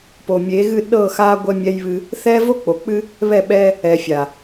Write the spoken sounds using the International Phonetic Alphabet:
po˨mʲe˨˦ɣɨ˦˨ ɗɤ˦˨xa˦ ɡʷɛ˦mʲɛ˦jβɨ˦ | θɛ˦ vo˦k͡po˨k͡pɨ˦ | βɛ˦˨ɓɛ˦ | ɛ˨fʲa˨

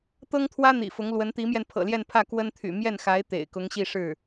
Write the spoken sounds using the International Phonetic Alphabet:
t̪ɤ˥ŋt̪ʰwä˥n̪ḭ˨˩ fʊ˧˥ŋ lwə˧˥nt̪i˧˥mjɛ˧n pʰɤ̰˨˩ljɛ˥˧npʰä˥˩ kwə˥nt̪ʰy̰˨˩ mjɛ˥˩nxa˧˥ɪ̯ t̪ḛ˨˩ɪ̯ kʊ˧˥ŋɕi˥˧ʂɻ̩˥˩

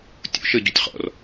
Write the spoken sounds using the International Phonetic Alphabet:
tʲṵʃə ɟutʲχɔ̰r

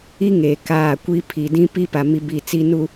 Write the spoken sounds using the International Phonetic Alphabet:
i˦ ŋeː˨kaː˦˨kʷi˦ pʰi˨ dĩ˦pi˦pa˨ mi˦bi˦˨t͡si˦ nu˨

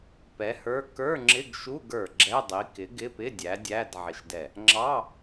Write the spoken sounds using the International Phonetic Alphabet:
pɛ˨˥hə˞˧˥˧ kə˞˧˥˧ŋ͡ǁɪ˧˥˧ɡʃu˧˥˧ɡ ə˞˧˩ ɡ͡ǁɛ˧˥˧ dˤi˨˥ kɪ˨˥ɡɪ˧˥˧pɪ˧˥˧ dʲæ˨˥dʲæ˧˥˧d ʕɪ˧˩ʃdɛ˧˩ | ŋ͡ǁɑ˧˥˧

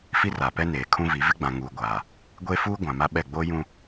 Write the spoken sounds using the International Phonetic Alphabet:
fi˦ra˨pɛ˦ neː˨kʰũ˦vi˨˦ vɪ˦ɡ͡bã˨ŋuː˨ɡʷaː˨ | ɡʷe˦fuː˦ ɡʷã˨ma˦ɓɛ˦˨ ɡ͡bo˦jũ˦

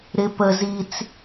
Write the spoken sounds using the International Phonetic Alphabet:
ɾɪ pə zit͡s

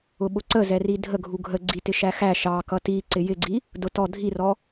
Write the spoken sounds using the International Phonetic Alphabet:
ʊɓʊǀəzɛ ridʱəɡʱu ɡʱəɡ͡ǀitɪ ʃæxæ ʃɑ kʌti ǀɪjɪɡ͡ǀi | dʊtɔ dʱirɔ

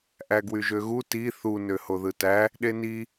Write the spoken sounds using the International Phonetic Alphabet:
ʔæɡwyʒøɣu ti θu nøhoðɯtæ | ɗeni

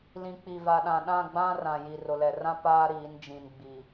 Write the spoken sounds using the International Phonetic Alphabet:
lĩ˨k͡pi˨va˨ɗã˨ ɗã˦˨ɡ͡bã˦ rã˨ ji˨ rʊ˨lɛ˨rã˦ paː˦ɾiː˨˦n d͡ʒĩ˨nɡ͡bi˨

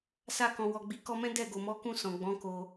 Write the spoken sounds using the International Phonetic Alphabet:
sa˧kɔ̃˨wɔ˨ ɡ͡bi˨˦kɔ˧mɛ̃˦ dɛ˦˨ɡo˨mɔ˨˦ kũ˧ sɔ̃˨ɡ͡bɔ̃˨˦ ko˧

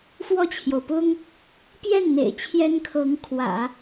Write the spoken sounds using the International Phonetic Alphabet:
fwɔ˥˩t͡ɕʰjo˩ʊ̯pʊ˥ŋ | pjɛ˥˩nn̪ḛ˨˩ɪ̯ t͡ɕʰjɛ˥nkʰɤ˧˥ŋ kʰwä̰˨˩˦

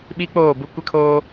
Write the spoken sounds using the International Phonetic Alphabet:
ɓi˦k͡poː˦˨ bu˦kʷɛ˦kʰoː˦

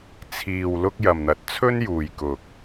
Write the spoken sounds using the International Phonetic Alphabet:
t͡sʰiː˨w lʊ˥k̚jɐ˨mn̪ɐ˨˥t̚ t͡sʰɵ˥njuː˨jkʊ˨k̚

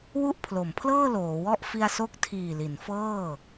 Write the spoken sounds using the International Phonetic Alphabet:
wu˥˩ʔpʰlo˩˦mpʰlɤː˥˩ loː˩˦wɔ˥˩ʔ fi˧a̯so˦˥k̚tʰiː˨˩ li˩˦nfɤː˥˩

